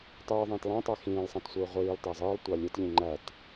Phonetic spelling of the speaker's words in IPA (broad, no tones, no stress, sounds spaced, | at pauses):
tˤ ɯː ðˤ ĩː t lˠ æ̃ tˤ æ x ĩː lˠ sˤ æ̃ t sʷ ɯː ʁʷ iː lˠ t æ zˤ ɯː lˠ tʷ ɑ lʲ ɯ t ʎ ĩ ŋ͡ǃ æ t